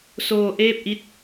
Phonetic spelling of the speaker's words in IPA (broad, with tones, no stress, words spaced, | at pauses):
soː˧ʔeː˥˩p̚ʔi˦˥t̚